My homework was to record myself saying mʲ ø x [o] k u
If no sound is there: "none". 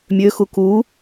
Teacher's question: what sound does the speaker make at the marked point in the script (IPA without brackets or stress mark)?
u